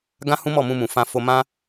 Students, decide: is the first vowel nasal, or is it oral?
nasal